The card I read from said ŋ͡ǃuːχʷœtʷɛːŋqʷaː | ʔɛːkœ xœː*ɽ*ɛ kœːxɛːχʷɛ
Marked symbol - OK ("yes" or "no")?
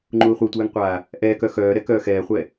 no